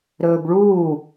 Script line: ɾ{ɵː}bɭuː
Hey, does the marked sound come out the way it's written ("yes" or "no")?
yes